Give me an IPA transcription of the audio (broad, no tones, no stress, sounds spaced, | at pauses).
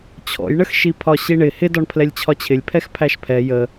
t͡ɕʰ ɔ̰ j ɳ ə x ʃ i pʰ ɒ ɕ i ɳ ɪ h ɪ d ɒ ɳ pʰ l ɛ lʲ t͡ɕʰ ɒ t͡ɕʰ ɪ lʲ pʰ ɛ x pʰ æ ʃ pʰ ɛ j ə